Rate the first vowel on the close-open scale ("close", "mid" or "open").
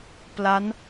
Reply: open